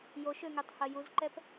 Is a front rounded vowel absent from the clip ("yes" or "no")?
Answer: no